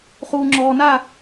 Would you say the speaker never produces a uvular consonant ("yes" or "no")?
no